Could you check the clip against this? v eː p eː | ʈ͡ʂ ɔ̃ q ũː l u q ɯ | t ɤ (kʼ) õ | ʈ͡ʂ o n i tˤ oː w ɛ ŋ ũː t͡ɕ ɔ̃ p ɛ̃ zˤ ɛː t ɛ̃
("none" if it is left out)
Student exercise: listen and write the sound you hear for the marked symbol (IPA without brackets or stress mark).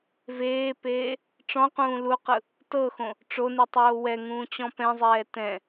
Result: x